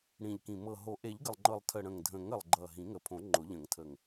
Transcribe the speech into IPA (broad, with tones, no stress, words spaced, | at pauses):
ɽĩ˨˩ʎkĩ˨˩ mɤ˨˩ɦo˨˩˦ ʔe˨˩˦ʎɡə˨˩lˠŋ͡ǃɤ˨˩lˠtʰə˨˩ ɽə̃˨˩ŋdʱə̃˨˩˦ŋə˨˩lˠ ɡ͡ǃʌ˨˩ ɦĩ˨˩˦ŋə˨˩pʰõ˨˩˦ ŋ͡ǃʊ˨˩˦ʎə̃˨˩˦ŋtʰə˨˩ŋ